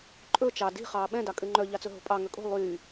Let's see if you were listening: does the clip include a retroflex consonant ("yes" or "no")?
no